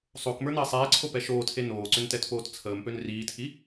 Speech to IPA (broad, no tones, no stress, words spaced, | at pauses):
sˤokmə˞nəː sˤeːǀʰopɛ ʃoːtʰe noːǀʏntɛtpoːt t͡sʰəːmpøn riːtʰi